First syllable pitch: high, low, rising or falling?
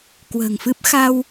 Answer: low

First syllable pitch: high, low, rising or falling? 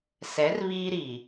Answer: rising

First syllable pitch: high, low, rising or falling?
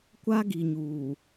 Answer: high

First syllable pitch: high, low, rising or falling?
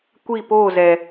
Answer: falling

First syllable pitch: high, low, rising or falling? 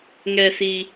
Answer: low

